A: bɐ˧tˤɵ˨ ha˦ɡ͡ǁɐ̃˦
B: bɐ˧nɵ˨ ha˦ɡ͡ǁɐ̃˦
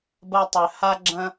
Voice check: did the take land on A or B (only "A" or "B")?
A